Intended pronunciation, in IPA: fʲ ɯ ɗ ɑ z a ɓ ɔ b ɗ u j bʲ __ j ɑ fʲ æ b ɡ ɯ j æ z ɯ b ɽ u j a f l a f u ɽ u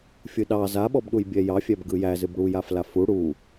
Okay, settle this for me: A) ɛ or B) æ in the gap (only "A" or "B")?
A